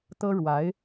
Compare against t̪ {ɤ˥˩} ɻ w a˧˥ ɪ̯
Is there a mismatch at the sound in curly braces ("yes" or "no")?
yes